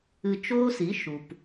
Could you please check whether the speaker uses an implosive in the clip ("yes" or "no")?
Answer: no